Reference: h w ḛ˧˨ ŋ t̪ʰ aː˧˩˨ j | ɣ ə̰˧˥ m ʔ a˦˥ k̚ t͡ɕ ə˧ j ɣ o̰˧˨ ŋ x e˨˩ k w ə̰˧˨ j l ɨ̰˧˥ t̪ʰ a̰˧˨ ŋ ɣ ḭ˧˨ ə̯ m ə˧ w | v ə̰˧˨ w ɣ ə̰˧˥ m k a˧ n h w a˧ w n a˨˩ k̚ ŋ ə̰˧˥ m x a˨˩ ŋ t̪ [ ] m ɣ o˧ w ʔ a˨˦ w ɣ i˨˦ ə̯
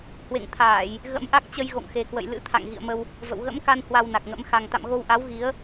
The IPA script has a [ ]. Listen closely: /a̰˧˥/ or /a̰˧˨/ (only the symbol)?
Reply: a̰˧˨